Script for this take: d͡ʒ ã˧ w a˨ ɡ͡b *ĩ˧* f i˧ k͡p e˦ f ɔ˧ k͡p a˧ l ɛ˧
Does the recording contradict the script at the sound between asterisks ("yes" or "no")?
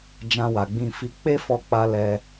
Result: no